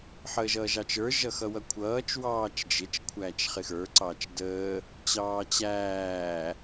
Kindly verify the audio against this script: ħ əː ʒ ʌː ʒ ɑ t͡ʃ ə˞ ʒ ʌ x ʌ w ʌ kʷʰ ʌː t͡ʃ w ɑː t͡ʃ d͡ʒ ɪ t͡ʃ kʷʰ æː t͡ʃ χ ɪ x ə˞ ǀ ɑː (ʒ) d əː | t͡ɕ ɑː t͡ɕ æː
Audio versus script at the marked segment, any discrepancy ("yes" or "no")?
yes